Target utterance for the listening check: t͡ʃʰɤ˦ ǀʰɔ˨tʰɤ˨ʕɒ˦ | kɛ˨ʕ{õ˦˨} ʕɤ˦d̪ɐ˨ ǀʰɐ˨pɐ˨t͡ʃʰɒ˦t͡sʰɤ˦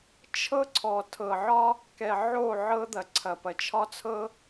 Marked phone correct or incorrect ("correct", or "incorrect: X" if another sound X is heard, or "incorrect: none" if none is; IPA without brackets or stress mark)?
incorrect: o˦˨